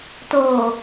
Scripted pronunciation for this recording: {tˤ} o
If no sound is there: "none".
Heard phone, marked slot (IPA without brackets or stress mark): t